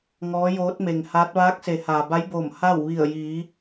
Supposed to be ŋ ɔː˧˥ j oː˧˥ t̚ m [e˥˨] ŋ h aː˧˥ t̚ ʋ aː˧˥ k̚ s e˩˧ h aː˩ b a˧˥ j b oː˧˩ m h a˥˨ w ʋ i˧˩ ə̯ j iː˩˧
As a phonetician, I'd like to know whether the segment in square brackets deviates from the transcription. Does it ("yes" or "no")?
yes